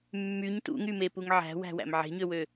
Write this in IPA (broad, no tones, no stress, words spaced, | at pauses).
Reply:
mːyɲ tṵŋymepuŋ ʕæ̤wæ̤wæ̰m ʕe̤ɲøwø